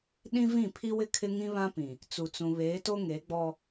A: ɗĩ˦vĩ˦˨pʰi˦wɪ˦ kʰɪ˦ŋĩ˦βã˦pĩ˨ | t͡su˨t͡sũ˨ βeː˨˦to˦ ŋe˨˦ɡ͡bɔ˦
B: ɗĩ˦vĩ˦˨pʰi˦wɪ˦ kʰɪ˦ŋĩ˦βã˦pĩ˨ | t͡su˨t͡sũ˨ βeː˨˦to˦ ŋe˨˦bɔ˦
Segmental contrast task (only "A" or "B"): A